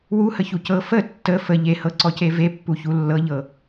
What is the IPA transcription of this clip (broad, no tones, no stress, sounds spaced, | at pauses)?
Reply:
w u h ə ç u c ɤ f ə tː ə f ə ʎ e h ɤ ǀ ɔ c e v e pː u ç u lː ɤ ʎ ɤ